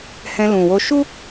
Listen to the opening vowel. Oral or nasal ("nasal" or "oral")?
nasal